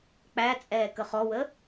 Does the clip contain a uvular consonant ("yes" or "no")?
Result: yes